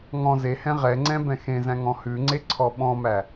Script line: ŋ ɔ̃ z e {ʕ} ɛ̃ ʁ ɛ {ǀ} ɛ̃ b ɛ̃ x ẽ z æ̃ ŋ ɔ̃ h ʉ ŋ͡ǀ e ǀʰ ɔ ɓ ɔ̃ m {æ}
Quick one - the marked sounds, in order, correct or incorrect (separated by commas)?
incorrect, incorrect, correct